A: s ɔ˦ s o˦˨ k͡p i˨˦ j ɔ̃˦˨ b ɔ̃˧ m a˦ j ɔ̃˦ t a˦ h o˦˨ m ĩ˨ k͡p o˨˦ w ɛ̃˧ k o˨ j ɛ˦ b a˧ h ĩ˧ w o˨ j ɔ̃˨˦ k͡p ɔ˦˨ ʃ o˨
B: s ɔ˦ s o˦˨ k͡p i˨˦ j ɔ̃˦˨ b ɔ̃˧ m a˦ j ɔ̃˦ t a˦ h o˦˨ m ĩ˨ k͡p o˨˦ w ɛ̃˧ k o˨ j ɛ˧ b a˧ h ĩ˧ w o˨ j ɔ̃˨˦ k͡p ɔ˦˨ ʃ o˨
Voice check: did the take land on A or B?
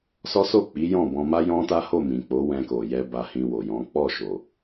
B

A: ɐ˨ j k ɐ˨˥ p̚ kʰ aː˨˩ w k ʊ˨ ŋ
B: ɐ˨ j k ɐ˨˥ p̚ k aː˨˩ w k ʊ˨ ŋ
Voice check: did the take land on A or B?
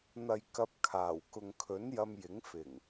A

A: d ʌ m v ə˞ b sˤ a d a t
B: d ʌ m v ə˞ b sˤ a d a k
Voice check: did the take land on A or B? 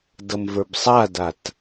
A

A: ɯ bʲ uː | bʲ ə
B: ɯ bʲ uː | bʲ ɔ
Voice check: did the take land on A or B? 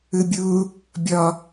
B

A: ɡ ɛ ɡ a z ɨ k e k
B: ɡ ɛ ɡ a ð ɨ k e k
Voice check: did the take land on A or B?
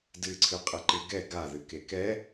B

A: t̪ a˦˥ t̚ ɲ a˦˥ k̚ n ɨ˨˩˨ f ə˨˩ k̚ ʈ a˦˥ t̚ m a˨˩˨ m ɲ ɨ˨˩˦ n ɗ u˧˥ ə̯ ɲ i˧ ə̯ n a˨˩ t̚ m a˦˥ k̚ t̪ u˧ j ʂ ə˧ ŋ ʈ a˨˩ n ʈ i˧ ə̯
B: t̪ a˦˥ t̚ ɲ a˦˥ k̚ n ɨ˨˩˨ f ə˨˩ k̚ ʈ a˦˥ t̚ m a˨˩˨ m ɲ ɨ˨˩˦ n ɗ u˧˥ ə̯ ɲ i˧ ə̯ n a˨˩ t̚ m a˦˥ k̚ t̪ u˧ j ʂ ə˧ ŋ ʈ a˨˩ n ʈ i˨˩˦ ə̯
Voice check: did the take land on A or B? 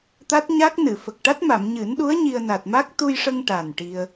A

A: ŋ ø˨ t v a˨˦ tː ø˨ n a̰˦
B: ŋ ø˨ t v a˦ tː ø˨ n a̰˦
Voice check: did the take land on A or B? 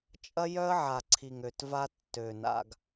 B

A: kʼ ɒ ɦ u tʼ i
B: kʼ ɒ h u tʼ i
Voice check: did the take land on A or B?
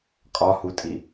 B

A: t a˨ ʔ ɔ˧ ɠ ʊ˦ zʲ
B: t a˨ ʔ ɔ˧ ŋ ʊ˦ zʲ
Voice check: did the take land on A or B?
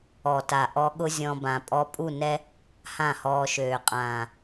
A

